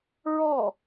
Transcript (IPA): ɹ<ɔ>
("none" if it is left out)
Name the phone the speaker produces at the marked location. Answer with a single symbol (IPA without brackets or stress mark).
ɔ